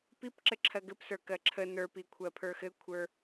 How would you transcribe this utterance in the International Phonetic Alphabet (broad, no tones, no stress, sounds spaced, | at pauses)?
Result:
p i p ǁ ɘ ǁʰ ɜ ɡ ɘ p s ə˞ k ɜ ǁʰ ə n ə˞ p i kʷʰ ɜ pʰ ə˞ x ɘ kʷʰ ə˞